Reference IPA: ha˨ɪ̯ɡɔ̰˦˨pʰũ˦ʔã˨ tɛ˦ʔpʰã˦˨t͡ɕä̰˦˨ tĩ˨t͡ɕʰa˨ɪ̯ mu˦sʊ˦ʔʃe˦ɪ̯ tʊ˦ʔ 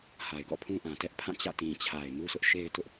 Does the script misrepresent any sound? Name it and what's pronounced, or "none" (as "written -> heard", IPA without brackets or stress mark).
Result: none